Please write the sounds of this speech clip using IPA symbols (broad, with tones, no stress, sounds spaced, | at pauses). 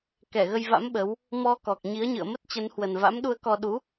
k ɛ˧˩ ɣ ə˧ j v a̰˧˥ m ɓ ə˨˦ w | m ɔ˧ k ɔ˨˩ k̚ ɲ i˨˦ ə̯ ɲ ɨ̰˧˨ ə̯ m ə˦˥ t̚ t͡ɕ ə˨˦ n h w ə˨˩ n v a̰˧˥ m ɗ u˧ ə̯ k ɔ˧ ɗ u˨˦